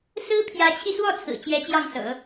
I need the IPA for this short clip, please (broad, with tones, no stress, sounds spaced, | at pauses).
s ɹ̩˥ pʰ j ä˧˥ t͡ɕʰ i˧ s w ɔ˥˩ t͡sʰ ɹ̩˨˩ t͡ɕ j ɛ˧˥ t͡ɕ j ɑ˥˩ ŋ s ɤ̰˨˩˦